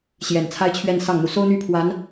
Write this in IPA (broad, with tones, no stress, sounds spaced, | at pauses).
ɕ j ɛ˨˩ n t͡sʰ a˥ ɪ̯ t͡ɕʰ ɥ ɛ˥˧ n s ɑ˥˩ ŋ n̪ u˨˩ s o˥ ʊ̯ n̪ y˥˩ pʰ w a˧˥ n